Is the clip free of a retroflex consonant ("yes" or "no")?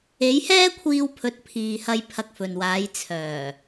yes